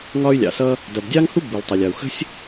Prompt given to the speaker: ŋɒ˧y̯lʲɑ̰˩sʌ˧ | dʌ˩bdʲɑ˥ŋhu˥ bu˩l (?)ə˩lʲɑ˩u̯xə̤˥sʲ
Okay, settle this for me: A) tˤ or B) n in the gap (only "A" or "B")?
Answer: A